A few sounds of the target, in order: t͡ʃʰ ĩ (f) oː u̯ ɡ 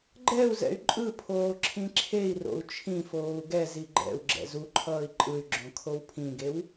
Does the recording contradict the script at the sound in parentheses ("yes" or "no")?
no